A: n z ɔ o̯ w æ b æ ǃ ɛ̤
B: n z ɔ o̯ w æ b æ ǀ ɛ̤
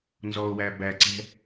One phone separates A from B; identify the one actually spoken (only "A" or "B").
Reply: B